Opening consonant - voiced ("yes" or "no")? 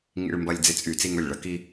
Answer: yes